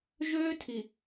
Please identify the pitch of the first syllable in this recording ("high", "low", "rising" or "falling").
high